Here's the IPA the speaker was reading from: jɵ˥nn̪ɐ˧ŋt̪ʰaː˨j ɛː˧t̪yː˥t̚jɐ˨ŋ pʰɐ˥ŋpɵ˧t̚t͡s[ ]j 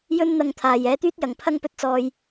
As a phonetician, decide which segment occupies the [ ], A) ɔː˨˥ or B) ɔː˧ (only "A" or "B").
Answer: B